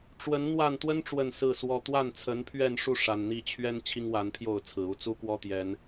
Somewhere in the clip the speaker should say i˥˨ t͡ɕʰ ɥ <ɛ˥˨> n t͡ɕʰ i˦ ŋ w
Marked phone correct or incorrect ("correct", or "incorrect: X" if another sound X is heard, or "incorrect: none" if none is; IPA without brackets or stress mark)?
incorrect: ɛ˦